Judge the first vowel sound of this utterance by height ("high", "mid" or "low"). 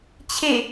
mid